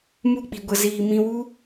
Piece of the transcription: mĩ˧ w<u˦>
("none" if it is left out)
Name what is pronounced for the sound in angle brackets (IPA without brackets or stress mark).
u˦